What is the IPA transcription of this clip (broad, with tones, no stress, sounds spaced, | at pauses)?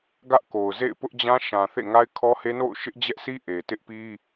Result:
ɡ ä˦ ʔ k o˨ ʊ̯ z ḛ˦˨ ɪ̯ p ʊ˦ ʔ d͡ʑ ã˦ ʃ ã˨ θ ḛ˦˨ ŋ a˦ ɪ̯ kʰ ɔ˦ h e˦ n o̰˦˨ ʊ̯ ʃ ɪ˦ ʔ d͡ʑ ɛ˦ ʔ sʰ i˦ ʔ e˨ t ɪ˦ ʔ p i˦